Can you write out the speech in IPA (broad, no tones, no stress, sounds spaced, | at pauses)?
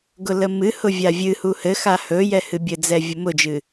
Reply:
ɡ ʊ l ə m ɨ h ʊ vʲ a vʲ ɨ h u h ɘ x a h ɵ j ɛ h ɨ bʲ ɘ d͡z ɛ vʲ ʊ m ʊ d͡ʒ ɨ